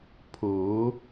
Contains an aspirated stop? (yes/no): yes